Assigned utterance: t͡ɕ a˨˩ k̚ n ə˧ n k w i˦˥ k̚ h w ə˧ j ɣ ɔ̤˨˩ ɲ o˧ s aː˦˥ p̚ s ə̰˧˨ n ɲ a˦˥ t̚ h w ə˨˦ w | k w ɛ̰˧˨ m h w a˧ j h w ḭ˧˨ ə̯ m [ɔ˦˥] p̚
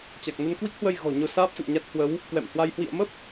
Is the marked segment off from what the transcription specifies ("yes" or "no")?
yes